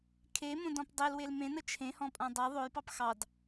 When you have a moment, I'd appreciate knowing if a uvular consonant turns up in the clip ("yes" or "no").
no